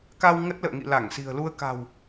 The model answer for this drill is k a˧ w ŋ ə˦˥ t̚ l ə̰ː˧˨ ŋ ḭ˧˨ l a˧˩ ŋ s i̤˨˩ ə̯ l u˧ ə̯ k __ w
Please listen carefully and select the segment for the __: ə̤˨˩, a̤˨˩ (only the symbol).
a̤˨˩